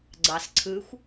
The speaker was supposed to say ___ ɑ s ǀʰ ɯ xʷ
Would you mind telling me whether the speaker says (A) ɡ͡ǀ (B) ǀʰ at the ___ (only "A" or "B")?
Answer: A